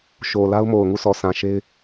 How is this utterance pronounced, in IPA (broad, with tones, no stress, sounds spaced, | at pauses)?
ʃ o˨ l a˦ ʊ̯ m o˨ ʊ̯ ŋ u˦˨ sʰ ɔ˨ sʰ ã˨ ʃ e˦ ɪ̯